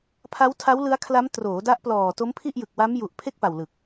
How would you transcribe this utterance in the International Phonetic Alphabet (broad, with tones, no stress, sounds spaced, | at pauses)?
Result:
pʰ a˦˥ w tʰ a˦˥ w l ɯ˦˥ a̯ kʰ l a˦˥ m t r oː˩˦ d a˦˥ ʔ p l ɔː˨˩ t o˦˥ m pʰ i˥˩ ʔ j ɯ˨˩ k̚ w a˦˥ m j u˨˩ ʔ pʰ e˥˩ k̚ p a˨˩ w l ɯ˨˩ k̚